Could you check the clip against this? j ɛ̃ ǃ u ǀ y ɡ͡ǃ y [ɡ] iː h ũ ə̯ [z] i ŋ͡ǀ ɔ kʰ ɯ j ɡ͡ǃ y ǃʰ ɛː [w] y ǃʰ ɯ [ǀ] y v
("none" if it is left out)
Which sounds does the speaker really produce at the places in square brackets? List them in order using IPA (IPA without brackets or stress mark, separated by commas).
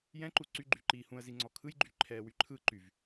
ǃ, z, w, ǃ